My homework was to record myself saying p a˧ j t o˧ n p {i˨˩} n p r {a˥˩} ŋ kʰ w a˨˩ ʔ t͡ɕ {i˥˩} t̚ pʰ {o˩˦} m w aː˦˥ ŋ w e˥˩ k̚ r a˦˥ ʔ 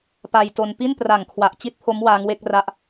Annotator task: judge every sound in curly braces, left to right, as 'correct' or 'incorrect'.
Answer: incorrect: i˥˩, incorrect: a˨˩, correct, incorrect: o˦˥

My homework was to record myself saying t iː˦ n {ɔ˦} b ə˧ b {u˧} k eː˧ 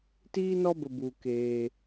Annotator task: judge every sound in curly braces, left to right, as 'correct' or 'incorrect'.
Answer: correct, correct

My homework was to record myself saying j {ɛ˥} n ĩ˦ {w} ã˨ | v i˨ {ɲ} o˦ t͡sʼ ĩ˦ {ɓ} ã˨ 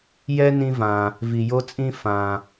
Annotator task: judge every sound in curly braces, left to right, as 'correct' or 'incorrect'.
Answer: correct, incorrect: v, incorrect: j, incorrect: f

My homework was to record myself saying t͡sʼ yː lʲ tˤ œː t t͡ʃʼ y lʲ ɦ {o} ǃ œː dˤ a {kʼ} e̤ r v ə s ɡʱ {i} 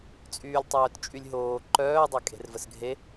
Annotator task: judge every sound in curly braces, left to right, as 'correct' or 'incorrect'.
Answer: incorrect: oː, correct, incorrect: e

